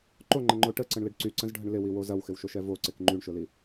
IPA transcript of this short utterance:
ǃoŋ͡ǃə̃ŋ͡ǃo ʈəǀə̃ɳlɪɖ ǀyǀə̃zɖʱəɳ lɪwiwo zɐwxɪwʃoʃɛ voǀɪk ŋ͡ǃyɳʃʊli

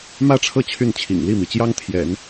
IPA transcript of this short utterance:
mä˥˧ʈ͡ʂʰɤ˥˧ t͡ɕʰy˥˩nt͡ɕʰḭ˨˩ŋ li˥˩mi˩t͡ɕjɑ˥ŋ t̪ʰjɛ̰˨˩˦n

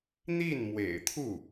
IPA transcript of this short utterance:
n̪i˥˩n mwḛ˨˩ɪ̯t̪ʰu˥˩

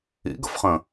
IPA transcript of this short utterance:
ḭɡə̰fχə̃

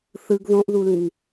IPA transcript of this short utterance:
θɯɡ ðõʔðulĩŋ

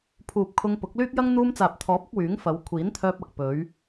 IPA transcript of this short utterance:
pʰuː˨p̚ kʰʊ˧ŋpʊ˨˥k̚lyː˥k̚jɐ˥ŋ n̪uː˧mt͡saː˨p̚t̪ʰɔː˨˥p̚ʊ˧k̚ wyː˨˥ŋfɐ˨˧w kʷʰiː˨˥nt̪ʰœː˧p̚ɐ˨k̚ pɵ˨˧ɥ

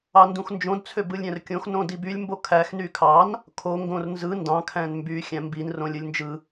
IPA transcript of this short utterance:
ɑndũxnd͡ʒõd t͡sʰøbɯlʲɾʲæ̃rkʲõx nõdibylʲ mbokʰæx nykʰɑn | kʰo ŋɡõrnzɯ ndɑ̃ kʰæ̃nmby xʲæ̃mbin rõlʲɯlʲnd͡ʒɯ

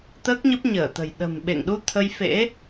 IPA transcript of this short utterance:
t̪əː˦˥k̚ɲə˦˥p̚ɲəː˧˩t̪ə̤˨˩j ɗə̤˨˩mɓḛ˧˨ŋɗu˧ t̪ʰə˧jfḛ˧˥

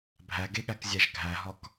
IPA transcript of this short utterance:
bʱæɡeɠækzʲæʒ ɡʱæɦɒk

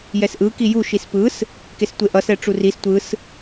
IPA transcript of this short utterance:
jɛsʔɯ kiju ʃispɯs | kestʷeʔʌs ɛʈ͡ʂuris tʷɯs

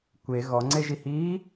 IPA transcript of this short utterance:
kʷe ɣɔŋ͡ǀeʒihiː

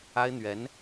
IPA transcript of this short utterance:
a˥ɪ̯n̪ɥɛ˧˥n

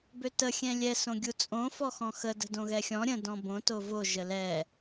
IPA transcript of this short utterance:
bøtə xʲɛ̃lʲɛ sõɡʲut͡sʼõ fɔxɔ̃xə də̤dõɣɛxʲɔ̃ ɾʲə̃ dɔ̃bõ tovo ʒəlɛ

